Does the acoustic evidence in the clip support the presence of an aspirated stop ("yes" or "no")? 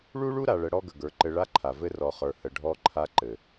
yes